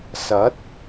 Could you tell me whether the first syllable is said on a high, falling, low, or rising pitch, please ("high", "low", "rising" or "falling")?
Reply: rising